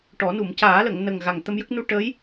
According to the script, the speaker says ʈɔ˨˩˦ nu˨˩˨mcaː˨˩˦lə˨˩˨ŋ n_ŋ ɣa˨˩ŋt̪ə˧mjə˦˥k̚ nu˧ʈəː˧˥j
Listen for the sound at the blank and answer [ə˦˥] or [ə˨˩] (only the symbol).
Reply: ə˨˩